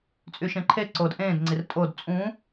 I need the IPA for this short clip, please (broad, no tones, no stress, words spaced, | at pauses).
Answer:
t͡sʼyʃẽǃʰeǀoːd ʔẽːdŋ͡ǀir tʼod t͡sʼũ